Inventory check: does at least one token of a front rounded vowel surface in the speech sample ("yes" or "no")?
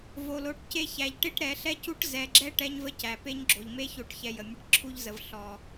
no